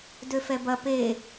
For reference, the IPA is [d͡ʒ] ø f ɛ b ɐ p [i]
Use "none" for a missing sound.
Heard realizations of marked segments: d, e

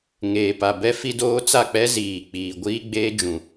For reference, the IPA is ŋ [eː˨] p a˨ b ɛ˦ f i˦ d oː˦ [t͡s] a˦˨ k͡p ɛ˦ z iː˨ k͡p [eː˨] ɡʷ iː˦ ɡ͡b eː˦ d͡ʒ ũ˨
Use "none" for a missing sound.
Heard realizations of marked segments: eː˨, t͡s, iː˨

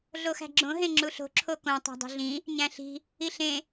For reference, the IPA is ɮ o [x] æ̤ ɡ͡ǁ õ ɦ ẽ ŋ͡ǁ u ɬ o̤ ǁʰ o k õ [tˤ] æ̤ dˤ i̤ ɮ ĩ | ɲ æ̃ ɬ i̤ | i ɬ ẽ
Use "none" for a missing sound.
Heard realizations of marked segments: x, tˤ

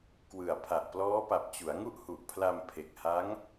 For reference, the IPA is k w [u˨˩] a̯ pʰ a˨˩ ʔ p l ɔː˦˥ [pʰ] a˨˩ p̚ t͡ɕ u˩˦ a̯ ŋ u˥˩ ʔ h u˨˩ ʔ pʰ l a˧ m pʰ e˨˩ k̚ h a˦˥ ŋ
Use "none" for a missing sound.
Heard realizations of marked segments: ɯ˨˩, p

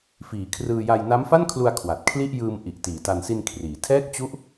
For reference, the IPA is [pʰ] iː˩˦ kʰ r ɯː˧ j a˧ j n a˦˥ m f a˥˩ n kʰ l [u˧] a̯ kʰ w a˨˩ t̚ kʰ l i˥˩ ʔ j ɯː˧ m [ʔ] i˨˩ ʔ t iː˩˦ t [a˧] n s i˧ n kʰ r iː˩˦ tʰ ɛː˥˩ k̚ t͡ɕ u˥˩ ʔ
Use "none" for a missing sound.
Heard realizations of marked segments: f, u˧, ʔ, a˧

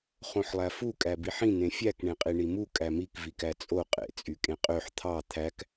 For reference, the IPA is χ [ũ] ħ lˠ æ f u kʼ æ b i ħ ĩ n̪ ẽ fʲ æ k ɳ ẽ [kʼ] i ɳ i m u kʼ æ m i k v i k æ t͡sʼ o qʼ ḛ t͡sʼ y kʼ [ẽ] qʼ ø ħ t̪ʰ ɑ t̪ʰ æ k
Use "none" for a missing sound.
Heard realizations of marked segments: õ, qʼ, ẽ

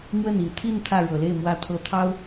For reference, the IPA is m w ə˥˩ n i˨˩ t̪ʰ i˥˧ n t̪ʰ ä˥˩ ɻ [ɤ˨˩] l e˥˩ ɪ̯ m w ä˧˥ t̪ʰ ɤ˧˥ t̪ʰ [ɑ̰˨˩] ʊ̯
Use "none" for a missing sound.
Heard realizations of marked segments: ɤ˨˩, ɑ˥

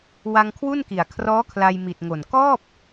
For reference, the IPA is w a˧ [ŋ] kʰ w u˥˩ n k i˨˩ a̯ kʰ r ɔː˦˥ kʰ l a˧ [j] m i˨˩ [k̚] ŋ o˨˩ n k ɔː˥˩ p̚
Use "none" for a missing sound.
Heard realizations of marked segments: ŋ, j, t̚

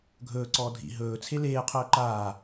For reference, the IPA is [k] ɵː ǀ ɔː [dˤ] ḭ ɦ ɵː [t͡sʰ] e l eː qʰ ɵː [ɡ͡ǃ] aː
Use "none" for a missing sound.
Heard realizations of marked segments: ɡʱ, dʱ, t͡sʰ, ǃ

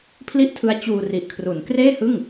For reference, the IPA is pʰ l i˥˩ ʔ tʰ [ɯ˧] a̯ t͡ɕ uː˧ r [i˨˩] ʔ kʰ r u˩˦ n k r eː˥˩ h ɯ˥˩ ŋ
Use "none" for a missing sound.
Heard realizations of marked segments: ɯ˦˥, i˨˩

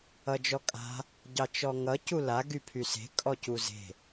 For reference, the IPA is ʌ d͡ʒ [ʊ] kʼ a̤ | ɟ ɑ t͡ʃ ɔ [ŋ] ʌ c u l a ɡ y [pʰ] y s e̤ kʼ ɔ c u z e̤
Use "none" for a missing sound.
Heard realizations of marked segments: ɔ, ŋ, pʰ

